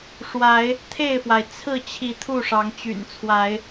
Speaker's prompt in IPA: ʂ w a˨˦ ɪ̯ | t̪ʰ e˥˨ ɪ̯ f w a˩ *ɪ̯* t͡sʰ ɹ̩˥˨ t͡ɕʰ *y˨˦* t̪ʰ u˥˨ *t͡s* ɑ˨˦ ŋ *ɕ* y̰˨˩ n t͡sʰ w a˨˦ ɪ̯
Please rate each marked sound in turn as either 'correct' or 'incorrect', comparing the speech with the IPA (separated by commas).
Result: correct, incorrect, incorrect, incorrect